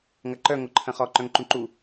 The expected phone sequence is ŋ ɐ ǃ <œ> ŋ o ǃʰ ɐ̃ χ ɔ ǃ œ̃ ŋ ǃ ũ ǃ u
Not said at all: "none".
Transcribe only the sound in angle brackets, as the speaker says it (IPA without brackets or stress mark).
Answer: œ